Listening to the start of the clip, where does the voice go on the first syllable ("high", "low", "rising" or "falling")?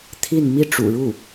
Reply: falling